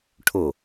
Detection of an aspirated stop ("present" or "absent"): present